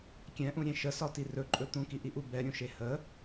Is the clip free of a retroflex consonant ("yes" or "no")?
yes